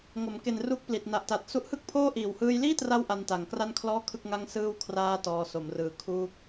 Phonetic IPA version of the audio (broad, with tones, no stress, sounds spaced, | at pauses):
ŋ o˩˦ m k e˨˩ n r u˦˥ k̚ p l i˨˩ t̚ n a˨˩ ʔ t a˨˩ t̚ s u˦˥ ʔ h ɯ˥˩ k̚ pʰ oː˥˩ ʔ iː˨˩ w h ɯː˧ j l iː˥˩ t r a˦˥ w ʔ a˧ n t a˩˦ ŋ k r a˥˩ n kʰ l ɔː˥˩ kʰ ɯ˥˩ k̚ ŋ a˥˩ ŋ s ɯː˥˩ w kʰ r aː˧ t ɔː˧ s o˩˦ m r ɯː˨˩ kʰ uː˦˥ k̚